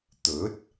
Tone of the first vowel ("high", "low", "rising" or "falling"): rising